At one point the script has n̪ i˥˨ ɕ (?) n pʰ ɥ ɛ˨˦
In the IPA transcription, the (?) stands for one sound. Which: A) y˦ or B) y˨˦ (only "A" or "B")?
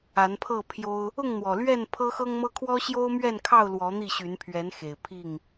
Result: B